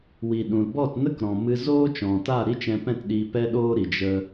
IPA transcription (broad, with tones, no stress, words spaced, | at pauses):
wi˨ɗũ˨lbɔ˦˨tnə˦k ɾɔ̃˨mɨ˧ zoː˦t͡ʃɔ̃˨ta˦˨ ɾi˦t͡ʃɛ̃˧pɛ̃˦˨t ɗiː˧pɛ˦ɗoː˦ɾi˨ d͡ʒə˦